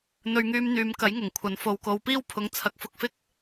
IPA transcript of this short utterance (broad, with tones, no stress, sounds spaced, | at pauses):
n̪ ɵ˧ ɥ ŋ yː˧ m n̪ yː˨˧ m k ɐ˨˥ j ŋ ʊ˨˩ ŋ kʷʰ ɐ˨˧ n f o˧ w k o˧ w p iː˥ w pʰ ʊ˨˥ ŋ t͡sʰ ɐ˨˥ k̚ f ʊ˧ k̚ f ɪ˥ k̚